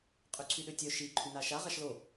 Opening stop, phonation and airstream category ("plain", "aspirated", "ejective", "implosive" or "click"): ejective